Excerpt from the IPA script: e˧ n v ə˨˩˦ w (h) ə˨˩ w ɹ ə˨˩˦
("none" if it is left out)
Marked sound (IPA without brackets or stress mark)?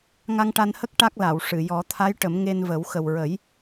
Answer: x